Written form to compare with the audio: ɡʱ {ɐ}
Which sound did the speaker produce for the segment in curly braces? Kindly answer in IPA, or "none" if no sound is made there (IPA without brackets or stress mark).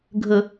ə